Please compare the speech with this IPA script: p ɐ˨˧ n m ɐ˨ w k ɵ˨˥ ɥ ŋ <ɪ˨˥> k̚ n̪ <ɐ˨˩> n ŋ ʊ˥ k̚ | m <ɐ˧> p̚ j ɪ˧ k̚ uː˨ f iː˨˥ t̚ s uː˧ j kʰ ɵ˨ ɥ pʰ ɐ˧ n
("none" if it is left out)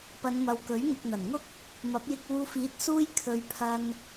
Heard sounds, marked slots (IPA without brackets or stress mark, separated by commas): ɪ˨, ɐ˨˩, ɐ˨˥